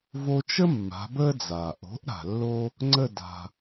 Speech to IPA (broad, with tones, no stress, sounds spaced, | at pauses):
v o˧ t͡ʃ ə˥ mː a̤˩˥ b əː˥ d͡z a˩ ʔ o̤˩˥ ʔ ɾ a̤˩ lː o˥ | ŋ͡ǀ ə˥˩ d a̤˩